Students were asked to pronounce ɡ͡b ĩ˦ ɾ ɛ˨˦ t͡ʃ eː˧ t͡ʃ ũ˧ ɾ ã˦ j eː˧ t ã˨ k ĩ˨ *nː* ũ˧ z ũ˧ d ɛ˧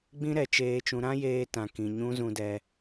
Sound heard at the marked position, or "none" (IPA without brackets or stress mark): ɲ